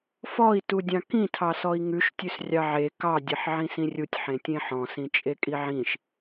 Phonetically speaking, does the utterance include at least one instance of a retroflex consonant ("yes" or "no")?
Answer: no